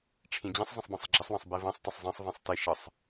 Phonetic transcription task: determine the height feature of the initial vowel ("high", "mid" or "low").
high